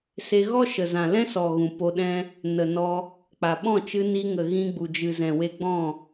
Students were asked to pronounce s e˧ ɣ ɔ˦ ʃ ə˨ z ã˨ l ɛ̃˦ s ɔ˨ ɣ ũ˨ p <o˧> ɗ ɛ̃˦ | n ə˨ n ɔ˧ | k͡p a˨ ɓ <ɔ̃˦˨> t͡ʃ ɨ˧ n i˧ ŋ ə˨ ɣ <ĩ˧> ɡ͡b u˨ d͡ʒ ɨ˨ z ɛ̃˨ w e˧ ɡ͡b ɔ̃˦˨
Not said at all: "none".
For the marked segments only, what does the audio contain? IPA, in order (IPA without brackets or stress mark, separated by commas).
o˧, ɔ̃˦˨, ĩ˧